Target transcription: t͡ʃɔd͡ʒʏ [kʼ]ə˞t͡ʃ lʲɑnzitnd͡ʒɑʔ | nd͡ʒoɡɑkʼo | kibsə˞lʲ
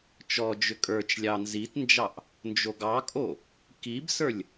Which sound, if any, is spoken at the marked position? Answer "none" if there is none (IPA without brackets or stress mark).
kʼ